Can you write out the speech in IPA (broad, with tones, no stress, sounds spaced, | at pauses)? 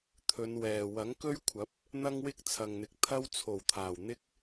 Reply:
t̪ʰ ɵ˨˧ n w ɛː˨ w ɐ˨˥ ŋ k ɵ˥ ɥ kʷʰ ɐ˨˥ p̚ | n̪ ɐ˥ ŋ w ɪ˥ k̚ t͡sʰ ɐ˨ ŋ n̪ ɪ˨˥ k̚ t̪ʰ ɐ˥ w t͡sʰ o˨˩ w t̪ʰ aː˨˩ w n̪ ɪ˥ k̚